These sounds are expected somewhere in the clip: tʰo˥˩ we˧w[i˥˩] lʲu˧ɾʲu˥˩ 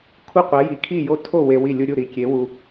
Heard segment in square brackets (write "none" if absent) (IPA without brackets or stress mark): i˥˩